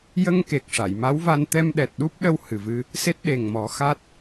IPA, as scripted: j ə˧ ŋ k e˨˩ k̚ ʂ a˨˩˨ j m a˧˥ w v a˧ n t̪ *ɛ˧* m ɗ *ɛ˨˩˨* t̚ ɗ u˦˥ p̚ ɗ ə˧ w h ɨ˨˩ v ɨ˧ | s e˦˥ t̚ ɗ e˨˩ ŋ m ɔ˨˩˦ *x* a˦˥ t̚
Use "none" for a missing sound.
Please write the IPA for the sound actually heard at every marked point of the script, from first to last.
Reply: ɛ˧, ɛ˨˩, x

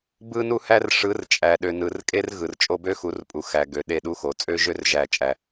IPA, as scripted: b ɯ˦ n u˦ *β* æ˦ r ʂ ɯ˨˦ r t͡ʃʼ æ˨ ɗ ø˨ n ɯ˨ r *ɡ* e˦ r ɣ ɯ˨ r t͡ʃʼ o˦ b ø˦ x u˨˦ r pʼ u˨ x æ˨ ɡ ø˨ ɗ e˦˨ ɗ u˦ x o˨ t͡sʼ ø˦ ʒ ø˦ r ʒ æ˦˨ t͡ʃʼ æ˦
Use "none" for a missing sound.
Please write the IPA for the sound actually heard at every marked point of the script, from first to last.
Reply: h, kʼ

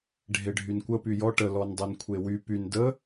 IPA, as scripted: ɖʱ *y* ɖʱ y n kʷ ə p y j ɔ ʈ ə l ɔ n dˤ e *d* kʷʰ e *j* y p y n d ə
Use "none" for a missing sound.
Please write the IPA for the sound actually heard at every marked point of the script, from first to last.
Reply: e, n, w

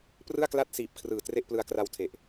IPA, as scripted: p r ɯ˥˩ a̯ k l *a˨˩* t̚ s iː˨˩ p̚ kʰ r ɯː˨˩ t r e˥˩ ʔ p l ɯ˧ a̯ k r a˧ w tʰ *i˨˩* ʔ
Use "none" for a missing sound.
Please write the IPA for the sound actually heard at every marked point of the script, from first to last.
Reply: a˥˩, e˨˩

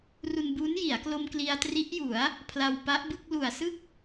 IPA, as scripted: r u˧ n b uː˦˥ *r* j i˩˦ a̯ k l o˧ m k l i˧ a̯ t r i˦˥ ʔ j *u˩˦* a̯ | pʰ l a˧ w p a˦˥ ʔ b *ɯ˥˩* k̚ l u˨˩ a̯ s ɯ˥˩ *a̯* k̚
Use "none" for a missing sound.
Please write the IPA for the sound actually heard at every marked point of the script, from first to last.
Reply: n, u˩˦, ɯ˥˩, none

